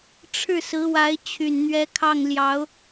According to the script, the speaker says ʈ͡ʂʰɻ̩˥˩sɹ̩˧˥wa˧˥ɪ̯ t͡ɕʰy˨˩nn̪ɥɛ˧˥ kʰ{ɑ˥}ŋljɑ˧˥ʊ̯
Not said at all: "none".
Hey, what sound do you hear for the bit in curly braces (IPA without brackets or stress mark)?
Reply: ɑ˥˩